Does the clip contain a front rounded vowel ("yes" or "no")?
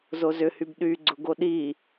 yes